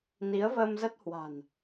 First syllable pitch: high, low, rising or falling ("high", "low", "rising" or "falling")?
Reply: rising